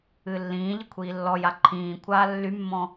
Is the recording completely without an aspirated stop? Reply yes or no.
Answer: no